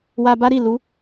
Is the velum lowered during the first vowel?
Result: no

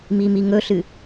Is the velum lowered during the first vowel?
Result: no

